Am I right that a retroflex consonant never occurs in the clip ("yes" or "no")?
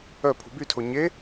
yes